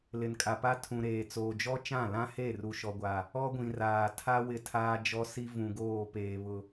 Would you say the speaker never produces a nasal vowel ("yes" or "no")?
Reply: no